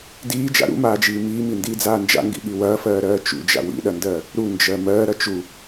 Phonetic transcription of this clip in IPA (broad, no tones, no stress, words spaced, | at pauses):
diːd͡ʒa̰ ɾṵmaːd͡ʒiː miːmindiːd͡zaː nd͡ʒa̰ŋɡḭɠi wɐːfɜːɾɜː t͡ʃṵd͡ʒa̰ wḭɗɐndɜː | ɾund͡ʒɜ mɜːɾɐ t͡ʃu